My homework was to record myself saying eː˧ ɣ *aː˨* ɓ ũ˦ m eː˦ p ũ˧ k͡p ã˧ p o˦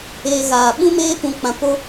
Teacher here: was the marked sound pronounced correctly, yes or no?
yes